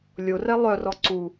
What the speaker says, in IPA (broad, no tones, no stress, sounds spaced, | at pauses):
lʲ o r ɛ lˠ œ r ɔ ǀ u